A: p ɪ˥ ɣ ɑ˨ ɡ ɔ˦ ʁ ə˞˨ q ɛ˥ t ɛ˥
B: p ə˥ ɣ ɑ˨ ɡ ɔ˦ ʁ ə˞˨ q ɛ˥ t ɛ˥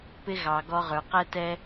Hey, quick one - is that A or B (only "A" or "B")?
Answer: A